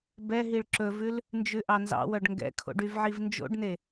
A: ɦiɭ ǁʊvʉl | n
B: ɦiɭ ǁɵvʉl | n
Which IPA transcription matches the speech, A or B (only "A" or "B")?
B